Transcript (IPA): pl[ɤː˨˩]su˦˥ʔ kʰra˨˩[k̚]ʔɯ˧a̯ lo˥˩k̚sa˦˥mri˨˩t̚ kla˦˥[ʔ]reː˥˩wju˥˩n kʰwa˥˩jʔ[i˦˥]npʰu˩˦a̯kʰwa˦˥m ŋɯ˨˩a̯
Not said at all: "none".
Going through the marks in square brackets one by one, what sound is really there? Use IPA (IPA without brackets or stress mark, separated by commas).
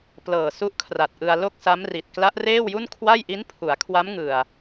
ɤː˨˩, t̚, ʔ, i˦˥